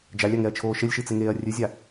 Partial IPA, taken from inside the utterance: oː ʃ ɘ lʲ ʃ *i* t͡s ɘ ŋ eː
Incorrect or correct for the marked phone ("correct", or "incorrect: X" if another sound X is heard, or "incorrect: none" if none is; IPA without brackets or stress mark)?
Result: correct